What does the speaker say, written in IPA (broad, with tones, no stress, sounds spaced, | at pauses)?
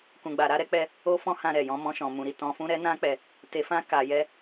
k ũ˧ ɡ͡b a˧ ɾ a˦ ɾ ɛ˦ k͡p ɛ˦ | o˦ f ɔ̃˦ h ã˧ ɾ ɛ˨ j ɔ̃˧ m ɔ̃˧ ʃ ɔ̃˨ m ũ˨ ɾ i˧ t ɔ̃˧ f ũ˦ ɾ ɛ˦ n ã˦ k͡p ɛ˧ | t e˧ f ã˦ k a˧ j ɛ˦